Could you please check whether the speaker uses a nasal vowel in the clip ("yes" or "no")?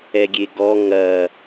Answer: no